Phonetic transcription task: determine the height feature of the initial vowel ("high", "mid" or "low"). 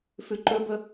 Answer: high